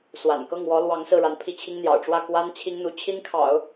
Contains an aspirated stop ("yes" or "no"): yes